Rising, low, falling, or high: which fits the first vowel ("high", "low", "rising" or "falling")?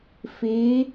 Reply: rising